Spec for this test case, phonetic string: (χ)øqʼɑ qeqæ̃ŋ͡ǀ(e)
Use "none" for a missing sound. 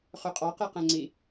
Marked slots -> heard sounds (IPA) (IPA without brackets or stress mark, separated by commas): χ, i